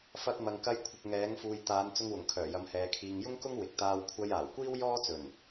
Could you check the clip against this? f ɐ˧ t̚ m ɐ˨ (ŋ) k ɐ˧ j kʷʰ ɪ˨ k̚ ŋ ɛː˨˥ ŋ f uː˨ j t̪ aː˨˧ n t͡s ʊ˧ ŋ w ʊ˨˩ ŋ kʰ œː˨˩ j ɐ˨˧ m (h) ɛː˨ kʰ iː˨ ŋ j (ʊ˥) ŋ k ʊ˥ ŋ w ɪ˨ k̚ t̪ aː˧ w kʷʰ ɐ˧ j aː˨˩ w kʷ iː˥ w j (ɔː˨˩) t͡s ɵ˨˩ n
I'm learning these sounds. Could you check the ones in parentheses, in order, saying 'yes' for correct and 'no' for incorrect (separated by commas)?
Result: yes, yes, yes, no